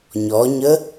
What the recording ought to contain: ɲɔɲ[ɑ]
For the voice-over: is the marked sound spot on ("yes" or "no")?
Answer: no